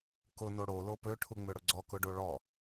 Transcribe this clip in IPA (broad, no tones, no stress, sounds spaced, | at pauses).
k ʊ n o ɽ o l o p ø ʈʰ u ŋ͡m ø ɽ ʊ ɡ͡ǀ ɔ k ʊ ɖ o ɭ ɔ